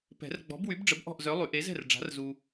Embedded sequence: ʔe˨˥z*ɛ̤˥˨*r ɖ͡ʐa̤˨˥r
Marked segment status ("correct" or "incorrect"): correct